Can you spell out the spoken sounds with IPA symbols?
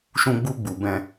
ʃ ũ˧ ɡ͡b u˧ ɡ͡b u˨ b ɛ̃˧

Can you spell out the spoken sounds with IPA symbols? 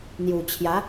n̪ j u˨˩ t͡ɕʰ j a˨˦

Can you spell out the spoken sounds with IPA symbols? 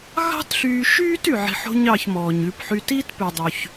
ɣ ɑ̤˥ t ɬ yː˧ ʃ yː˥ t y˩ ʕ i̤˧ ħ o̤˥ ɲ ɑ˧ ç m ɔː˩ ɲ ʉ˧ p ħ y˧ t i˥ t p ʉ˩ dˤ ʉ˩ ç

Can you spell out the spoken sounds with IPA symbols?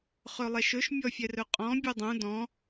χ ɵ lˠ ɛ ʃ ɵ ʃ mʲ ɔ fʲ ɛ r ɵ qʼ ɔ̃ bʲ u dˤ ũ d ɔ̃

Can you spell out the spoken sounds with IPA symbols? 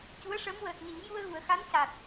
c u˧˥ ə̯ ʂ ə˧˥ m w əː˨˩ t̚ n i˨˩˦ ŋ j u˧ ə̯ ɣ u˨˩˨ ə̯ x a˧˥ n c a˨˩ t̚

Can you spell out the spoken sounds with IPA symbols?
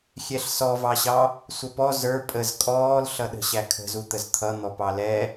xʲ ɛ ɬ s ɔ v ɑ ɕ ɑ | sʷ ʌ p ɔ z ə˞ pʼ ə z kʼ ɔː l ɬ ʌ ɗ ə̤ ɕ æ kʰ ə̤ z u t̪ ə z t̪ʰ ʌ n̪ ɔ p ɑ l ɛ

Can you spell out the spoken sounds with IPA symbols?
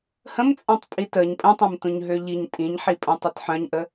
h ə̃ m t͡sʼ œ̃ tˤ pʼ i t ə ɲ pʼ ə̃ tˤ ɐ̃ m t ũ ɲ ɦ ø ʎ i ɲ tʼ ĩ ɲ ħ i pʼ ə̃ tˤ ɐ t ħ œ̃ ɲ ʔ ə

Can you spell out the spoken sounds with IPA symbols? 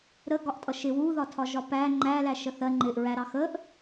ɾ ə ɡ ɒ ʔ tʼ ʌ ʃ ɪ w u ð ɒ tʰ ɒ ʒ ɒ p æ ŋ͡ǃ æ l æ ʃ ə θ ɜ ŋ͡ǃ ɪ ʔ ɹ æ ɾ ɑ x ə ʔ

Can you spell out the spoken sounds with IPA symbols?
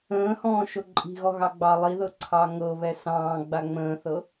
ə̃ː h ɔ̃ː ʃ o ǃʼ i̤ ɣ ɔ ɣ ɑ ɡ͡b ɑ lˠ i ð ɤ ǀʰ ɑ ŋ ɤ β ɛ s ɑ̃ː ɡ͡b a ŋ͡m ə̃ː θ ɤ

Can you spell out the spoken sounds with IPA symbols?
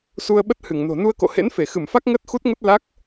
s u˧ ə̯ ɓ ə˦˥ t̚ h ɨ˧˩ ŋ n o̤˨˩ n u˧ ə̯ k o̰˧˨ h ḛ˧˥ n f e˧˩ x ɨ˧˩ m f a˦˥ k̚ ŋ əː˦˥ t̚ x u˦˥ t̚ ŋ ə˦˥ t̚ l a˦˥ k̚

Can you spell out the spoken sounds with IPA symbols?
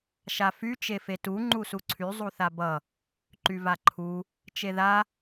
ʃ a f y t͡ʃ e f e t u ŋ͡ǃ u s u ǀʰ y zˤ u θ a b ʌ | ǃ y v a ǃʰ u | t͡ʃ e ð a

